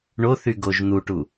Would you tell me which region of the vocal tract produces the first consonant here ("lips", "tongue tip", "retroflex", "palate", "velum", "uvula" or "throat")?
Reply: retroflex